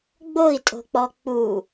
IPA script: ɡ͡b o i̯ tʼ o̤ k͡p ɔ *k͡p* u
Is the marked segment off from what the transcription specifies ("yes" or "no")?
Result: no